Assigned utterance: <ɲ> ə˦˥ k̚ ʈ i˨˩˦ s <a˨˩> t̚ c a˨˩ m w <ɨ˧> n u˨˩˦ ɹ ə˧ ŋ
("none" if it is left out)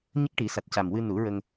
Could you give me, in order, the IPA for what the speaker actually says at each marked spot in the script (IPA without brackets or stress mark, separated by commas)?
ɲ, a˨˩, ɨ˧